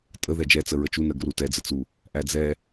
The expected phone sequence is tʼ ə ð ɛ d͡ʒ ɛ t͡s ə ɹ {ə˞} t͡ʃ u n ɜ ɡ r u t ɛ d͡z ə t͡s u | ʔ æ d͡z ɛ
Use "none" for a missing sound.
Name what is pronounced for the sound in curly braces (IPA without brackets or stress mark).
ə